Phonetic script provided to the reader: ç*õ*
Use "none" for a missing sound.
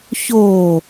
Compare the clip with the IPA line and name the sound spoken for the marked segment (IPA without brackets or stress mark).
o